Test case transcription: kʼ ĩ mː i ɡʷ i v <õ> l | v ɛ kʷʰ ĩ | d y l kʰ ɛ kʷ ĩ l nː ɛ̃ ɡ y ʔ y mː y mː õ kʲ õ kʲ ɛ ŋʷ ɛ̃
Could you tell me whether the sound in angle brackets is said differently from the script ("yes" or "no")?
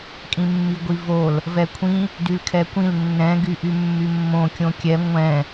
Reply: yes